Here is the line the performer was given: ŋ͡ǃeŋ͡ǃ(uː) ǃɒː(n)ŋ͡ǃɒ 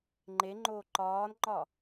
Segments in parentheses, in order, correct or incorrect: incorrect, correct

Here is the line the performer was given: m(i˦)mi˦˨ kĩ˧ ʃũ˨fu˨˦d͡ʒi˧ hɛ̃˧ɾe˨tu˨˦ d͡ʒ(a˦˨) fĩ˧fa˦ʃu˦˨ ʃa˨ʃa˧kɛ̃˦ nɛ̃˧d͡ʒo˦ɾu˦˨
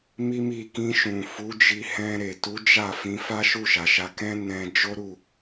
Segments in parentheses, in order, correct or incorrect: correct, correct

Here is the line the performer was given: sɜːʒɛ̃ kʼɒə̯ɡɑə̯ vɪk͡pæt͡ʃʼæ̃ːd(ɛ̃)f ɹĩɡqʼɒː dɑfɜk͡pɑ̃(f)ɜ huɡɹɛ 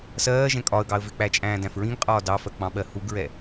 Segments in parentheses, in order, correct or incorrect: incorrect, incorrect

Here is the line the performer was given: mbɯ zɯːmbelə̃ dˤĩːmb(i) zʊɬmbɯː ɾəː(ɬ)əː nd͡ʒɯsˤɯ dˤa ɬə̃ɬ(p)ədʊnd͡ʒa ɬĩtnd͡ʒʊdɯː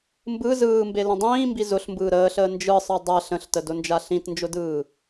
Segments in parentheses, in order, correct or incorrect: correct, correct, incorrect

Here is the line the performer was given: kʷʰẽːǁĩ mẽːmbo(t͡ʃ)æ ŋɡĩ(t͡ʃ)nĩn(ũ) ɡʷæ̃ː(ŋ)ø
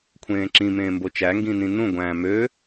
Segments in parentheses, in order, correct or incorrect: correct, incorrect, correct, incorrect

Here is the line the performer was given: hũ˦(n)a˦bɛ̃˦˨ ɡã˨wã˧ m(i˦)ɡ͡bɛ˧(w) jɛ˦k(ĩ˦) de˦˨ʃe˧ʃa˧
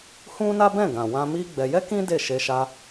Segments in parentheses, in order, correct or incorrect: correct, correct, incorrect, correct

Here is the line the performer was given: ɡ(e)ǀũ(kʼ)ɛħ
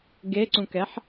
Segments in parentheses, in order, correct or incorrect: correct, incorrect

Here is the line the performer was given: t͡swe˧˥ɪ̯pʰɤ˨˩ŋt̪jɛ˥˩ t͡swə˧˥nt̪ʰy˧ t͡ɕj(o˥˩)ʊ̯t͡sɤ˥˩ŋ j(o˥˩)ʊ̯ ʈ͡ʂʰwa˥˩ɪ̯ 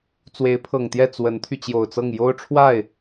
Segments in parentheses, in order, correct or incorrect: incorrect, incorrect

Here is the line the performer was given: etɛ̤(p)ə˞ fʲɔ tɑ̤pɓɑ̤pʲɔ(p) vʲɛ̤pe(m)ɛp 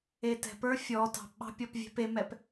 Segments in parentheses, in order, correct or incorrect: correct, correct, correct

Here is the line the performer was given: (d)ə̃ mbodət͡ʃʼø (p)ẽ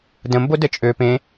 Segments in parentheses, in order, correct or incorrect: correct, correct

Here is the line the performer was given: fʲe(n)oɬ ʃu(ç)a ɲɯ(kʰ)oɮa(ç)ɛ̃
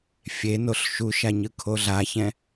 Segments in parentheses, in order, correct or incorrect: correct, incorrect, correct, correct

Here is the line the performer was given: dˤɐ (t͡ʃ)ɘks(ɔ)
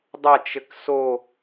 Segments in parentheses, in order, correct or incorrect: correct, incorrect

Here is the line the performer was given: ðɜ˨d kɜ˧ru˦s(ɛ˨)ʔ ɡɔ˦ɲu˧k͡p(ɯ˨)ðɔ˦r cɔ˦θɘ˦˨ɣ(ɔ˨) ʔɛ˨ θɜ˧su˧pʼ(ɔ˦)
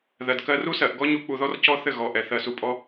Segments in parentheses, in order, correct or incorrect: incorrect, incorrect, correct, correct

